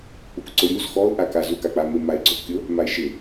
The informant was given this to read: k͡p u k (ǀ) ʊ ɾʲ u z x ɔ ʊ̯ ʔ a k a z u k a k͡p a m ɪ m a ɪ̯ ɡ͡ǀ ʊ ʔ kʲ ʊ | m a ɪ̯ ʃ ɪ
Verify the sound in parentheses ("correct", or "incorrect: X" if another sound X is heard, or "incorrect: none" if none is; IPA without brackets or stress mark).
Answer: correct